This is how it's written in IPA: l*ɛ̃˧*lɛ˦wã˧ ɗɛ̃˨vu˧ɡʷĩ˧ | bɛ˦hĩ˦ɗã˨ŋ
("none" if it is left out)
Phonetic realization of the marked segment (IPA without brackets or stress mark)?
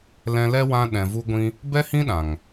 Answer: ɛ̃˧